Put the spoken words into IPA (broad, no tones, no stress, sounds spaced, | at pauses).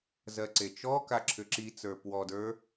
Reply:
z ɜ ǀ e t͡ʃ ɔ k a ǁʰ ʏ ǁ i t͡s ə˞ p w ɔ d ə˞